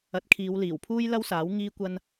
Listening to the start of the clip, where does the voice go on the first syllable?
rising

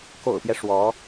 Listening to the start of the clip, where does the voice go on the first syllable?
low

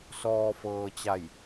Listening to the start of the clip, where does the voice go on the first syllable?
low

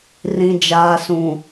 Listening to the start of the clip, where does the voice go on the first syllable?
low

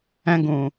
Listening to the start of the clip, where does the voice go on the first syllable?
high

